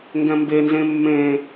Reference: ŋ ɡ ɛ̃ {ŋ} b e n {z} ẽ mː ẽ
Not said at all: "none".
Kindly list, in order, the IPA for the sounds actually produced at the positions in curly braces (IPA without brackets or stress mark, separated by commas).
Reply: m, z